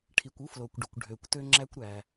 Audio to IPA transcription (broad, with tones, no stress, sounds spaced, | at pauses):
ʈʰ i˩ kʷ u˥ f l o˩ kʷ ɖ ɵ˩ kʷ ɖʱ ø˩ kʷ t ø˥ ŋ͡ǁ æ˥ kʷ ɾ æ˩